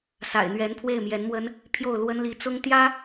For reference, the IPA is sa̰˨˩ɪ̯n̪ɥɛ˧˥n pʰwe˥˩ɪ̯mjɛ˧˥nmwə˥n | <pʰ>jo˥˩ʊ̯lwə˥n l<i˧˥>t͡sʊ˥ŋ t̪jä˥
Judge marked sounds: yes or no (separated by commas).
yes, yes